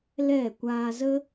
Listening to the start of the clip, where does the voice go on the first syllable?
falling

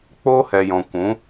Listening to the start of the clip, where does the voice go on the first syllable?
high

